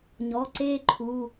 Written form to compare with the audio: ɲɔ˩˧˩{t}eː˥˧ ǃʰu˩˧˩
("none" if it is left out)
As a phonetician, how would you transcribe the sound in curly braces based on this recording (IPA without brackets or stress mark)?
ǀ